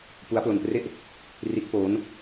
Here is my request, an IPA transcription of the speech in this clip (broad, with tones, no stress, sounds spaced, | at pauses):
p u˦˥ a̯ p l o˧ n p r e˥˩ ʔ | r i˦˥ t̚ p oː˦˥ n